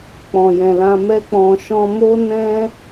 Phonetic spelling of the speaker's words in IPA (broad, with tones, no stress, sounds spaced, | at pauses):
k͡p ɔ̃˨ j ɛ̃˨ l ã˧ m ɛ˦ k͡p ɔ̃˧ ʃ ɔ̃˦ m o˦ n ɛ̃˦